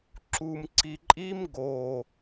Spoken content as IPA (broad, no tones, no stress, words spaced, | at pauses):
ǁum ǀiǃʼim ɡo